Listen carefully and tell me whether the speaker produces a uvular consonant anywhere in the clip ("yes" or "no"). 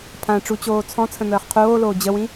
yes